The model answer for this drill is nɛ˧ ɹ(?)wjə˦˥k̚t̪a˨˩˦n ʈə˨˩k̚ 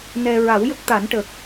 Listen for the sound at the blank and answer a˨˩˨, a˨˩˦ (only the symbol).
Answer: a˨˩˦